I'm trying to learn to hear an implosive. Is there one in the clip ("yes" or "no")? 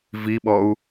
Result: yes